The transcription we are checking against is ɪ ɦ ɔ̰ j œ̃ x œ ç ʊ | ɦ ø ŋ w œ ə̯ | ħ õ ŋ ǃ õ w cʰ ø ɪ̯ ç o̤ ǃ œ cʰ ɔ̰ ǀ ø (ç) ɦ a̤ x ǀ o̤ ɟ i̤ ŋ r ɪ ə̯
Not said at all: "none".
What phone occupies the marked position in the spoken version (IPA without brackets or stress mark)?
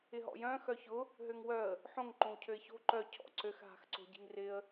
x